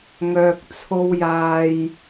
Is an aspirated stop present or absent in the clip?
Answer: present